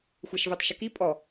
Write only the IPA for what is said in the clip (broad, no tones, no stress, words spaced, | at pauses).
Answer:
xʷɛʃvetˤʃəki pʼɔ